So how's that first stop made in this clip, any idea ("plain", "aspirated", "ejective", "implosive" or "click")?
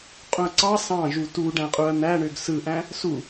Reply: ejective